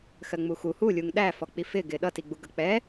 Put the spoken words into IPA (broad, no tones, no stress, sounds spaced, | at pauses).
x ɜ ŋ͡m u x u h u lʲ u ŋ ɗ æ f ɔ k͡p i f ɪ ɡ ɪ ɗ ʌ t i ɡ͡b u ɡ ʌ k͡p ɛ